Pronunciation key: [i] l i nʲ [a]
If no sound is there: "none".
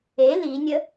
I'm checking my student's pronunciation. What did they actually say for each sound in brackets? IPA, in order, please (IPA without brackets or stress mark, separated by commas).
e, ə